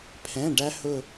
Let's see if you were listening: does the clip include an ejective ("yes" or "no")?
no